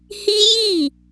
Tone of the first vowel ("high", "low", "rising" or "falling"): high